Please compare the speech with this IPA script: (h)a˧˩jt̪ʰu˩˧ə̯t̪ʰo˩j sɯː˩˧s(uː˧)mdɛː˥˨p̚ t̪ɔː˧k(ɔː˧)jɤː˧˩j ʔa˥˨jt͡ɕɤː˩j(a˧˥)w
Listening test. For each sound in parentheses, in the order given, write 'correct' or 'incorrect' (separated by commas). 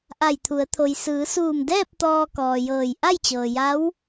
incorrect, incorrect, incorrect, correct